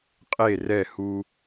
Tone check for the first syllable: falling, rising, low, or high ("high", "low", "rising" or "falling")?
falling